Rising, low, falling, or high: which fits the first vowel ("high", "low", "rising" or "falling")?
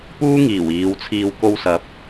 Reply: high